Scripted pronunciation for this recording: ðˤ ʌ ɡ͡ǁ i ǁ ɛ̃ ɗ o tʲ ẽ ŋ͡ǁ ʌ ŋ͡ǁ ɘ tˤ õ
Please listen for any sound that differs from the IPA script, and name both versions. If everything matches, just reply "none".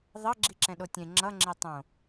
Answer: ɘ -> e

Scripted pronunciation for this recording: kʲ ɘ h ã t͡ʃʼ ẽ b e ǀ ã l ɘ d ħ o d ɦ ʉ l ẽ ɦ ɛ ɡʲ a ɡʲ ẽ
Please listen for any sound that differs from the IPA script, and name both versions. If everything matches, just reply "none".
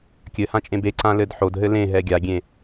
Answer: ʉ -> ɘ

